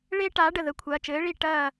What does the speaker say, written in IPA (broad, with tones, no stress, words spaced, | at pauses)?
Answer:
ɭeː˥ʈaː˨˥ ɖə˩˧˩ðə˩˧˩ kʷʰɐː˩˧˩t͡ʃɘː˨˥ɭi˥˩ ʈɐː˥˩